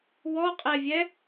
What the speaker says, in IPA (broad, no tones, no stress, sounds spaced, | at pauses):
w ɔ qʼ ɛ vʲ ɛ